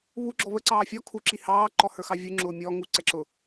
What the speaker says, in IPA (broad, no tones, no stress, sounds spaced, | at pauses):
β u ɡ͡ǁ ɔ β ə ǀ ɑː fʲ ɔ kʰ u ǁ i h ɑː ǃ ɔ h ə˞ x ɑ vʲ u ŋ͡ǁ ʊː mʲ ɔ ŋ u ǀ ɛ ǁ ʊ